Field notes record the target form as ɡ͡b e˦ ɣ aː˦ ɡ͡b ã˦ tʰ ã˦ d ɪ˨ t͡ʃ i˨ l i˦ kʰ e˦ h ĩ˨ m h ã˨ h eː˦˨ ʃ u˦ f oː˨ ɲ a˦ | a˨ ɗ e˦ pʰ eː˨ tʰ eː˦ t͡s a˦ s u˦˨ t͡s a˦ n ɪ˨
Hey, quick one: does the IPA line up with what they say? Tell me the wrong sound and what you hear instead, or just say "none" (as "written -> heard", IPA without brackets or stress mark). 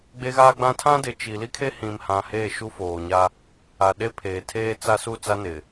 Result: none